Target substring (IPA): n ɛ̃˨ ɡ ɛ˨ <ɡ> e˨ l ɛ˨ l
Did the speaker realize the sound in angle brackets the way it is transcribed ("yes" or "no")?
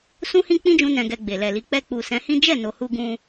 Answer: no